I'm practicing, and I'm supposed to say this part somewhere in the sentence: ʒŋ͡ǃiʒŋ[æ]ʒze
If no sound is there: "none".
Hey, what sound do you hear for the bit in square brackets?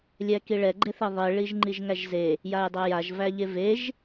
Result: æ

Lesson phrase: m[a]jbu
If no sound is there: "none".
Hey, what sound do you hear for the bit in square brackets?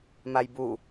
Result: a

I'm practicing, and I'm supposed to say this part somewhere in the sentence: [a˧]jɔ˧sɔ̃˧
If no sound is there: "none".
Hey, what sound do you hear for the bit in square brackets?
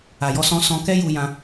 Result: a˨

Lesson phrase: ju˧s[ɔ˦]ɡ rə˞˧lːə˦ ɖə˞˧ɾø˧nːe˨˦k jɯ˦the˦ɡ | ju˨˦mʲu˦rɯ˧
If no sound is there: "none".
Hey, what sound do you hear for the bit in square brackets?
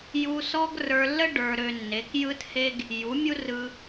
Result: ɔ˦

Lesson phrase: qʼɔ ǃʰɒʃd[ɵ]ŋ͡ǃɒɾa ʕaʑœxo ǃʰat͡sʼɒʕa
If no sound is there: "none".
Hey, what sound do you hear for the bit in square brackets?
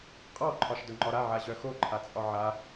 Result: ɵ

